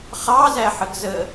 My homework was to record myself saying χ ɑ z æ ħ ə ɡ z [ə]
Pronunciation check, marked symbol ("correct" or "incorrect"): correct